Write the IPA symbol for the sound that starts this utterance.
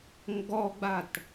ŋ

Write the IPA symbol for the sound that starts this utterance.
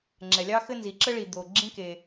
ŋ͡ǁ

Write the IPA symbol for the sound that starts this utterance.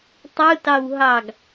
tˤ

